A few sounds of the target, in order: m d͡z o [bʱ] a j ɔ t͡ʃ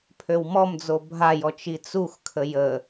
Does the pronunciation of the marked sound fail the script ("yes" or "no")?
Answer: no